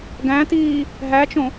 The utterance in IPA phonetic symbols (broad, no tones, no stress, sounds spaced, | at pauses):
ɡ æ̃ t iː | ɦ æ t͡ʃ õ